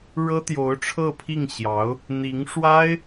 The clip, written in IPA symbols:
ɻɤ˥t̪jo˧˥ʊ̯ʈ͡ʂʰɤ˥˧pʰi˥˩ŋ ɕjɑ˧˥ʊ̯ | n̪i˧˥ŋʂwa˥ɪ̯

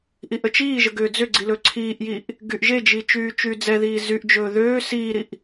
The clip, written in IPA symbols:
ʔiʔət͡ʃiːʒə ɡʏːd͡zʏɡ͡ǀi lɵǀʰiːʔjiːʔ | ɡyʔʒed͡ʒi t͡ʃyːt͡ʃyːd͡zɛðiː zyʔd͡ʒɵː ðøː siːɾiʔ

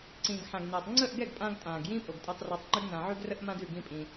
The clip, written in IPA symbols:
ǀĩː˨ɡħã˨ɡnɛː˨tˤ ŋ͡ǀə˦˨ʔɡɛ˦˨ɡ pʼã˧ɡtʼãː˨ɡ jĩː˦pʼo˨ɡtʼɛ˧tˤ rɑ˧tˤŋ͡ǃʉ˦ɡ nã˧ʕʉ˦ɡrə˦ʔ mã˦dʉ˦˨ɡĩ˦ pʼĩ˧

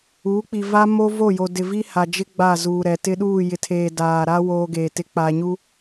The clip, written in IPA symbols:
uː˨˦k͡pi˨va˦ mo˦vo˦˨jo˨ dɪ˨vi˦ha˨d͡ʒɪ˦ ɡ͡ba˦˨zuː˨ɾɛ˨ tɪ˦ɗuː˦˨jɪ˨tʰeː˨ daː˨ɾa˦ woː˦ɡeː˨tɪ˦ k͡pa˨ɲu˦

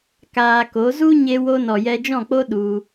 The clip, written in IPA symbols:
kaː˧ko˨˦ zu˦ɲe˧wo˧ nɔ˨jɛ˧d͡ʒɔ̃˦˨k͡po˦ ɗu˧

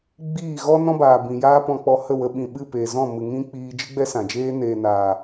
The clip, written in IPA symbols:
ɡ͡biː˦˨ ɣɔ˦nɔ̃˦baː˨ bĩ˨jaː˦pɔ̃˧k͡pɔ˧ hə˦˨wə˧ ɓĩ˨ɓɨ˦˨peː˨ zɔ̃˦˨mɨ˨ŋĩ˦ k͡piː˧d͡ʒɨ˦ɡ͡bɛ˦ sã˨d͡ʒeː˦ neː˨naː˨

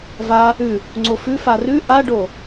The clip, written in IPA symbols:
va | ʉ | ŋ͡ǀofʉ farʉ ʔaɖo

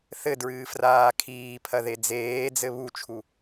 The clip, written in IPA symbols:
θɘdɹɨː fraːkʰiːpʰɐ ðed͡zeːd͡zɘ βut͡ʃʰu

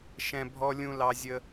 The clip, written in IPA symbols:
ʃɛ̃˥ bʱɔ˥lʲũ˥ lɑ˥zʲə˥

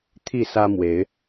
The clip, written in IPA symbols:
t̪ʰi˥˨sä˦mwe˨˦ɪ̯

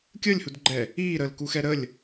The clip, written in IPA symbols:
kʲəːlʲhudɡ͡ǃɛ | iːɾəːlkuxɛ ɾəlʲ

